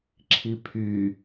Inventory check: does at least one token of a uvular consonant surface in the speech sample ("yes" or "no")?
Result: no